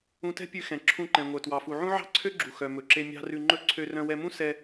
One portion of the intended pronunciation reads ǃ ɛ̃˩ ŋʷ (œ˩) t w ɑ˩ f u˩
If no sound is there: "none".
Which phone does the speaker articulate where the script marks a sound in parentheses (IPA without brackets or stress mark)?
œ˩